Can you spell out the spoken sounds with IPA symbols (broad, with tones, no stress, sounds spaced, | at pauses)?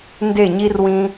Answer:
n d e˦˨ ɲ i˦ r w ĩ˦